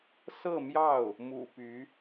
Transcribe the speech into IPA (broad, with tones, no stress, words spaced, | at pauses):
sɤ˥˧mjɑ˥˩ʊ̯ | mṵ˨˩ py˧˥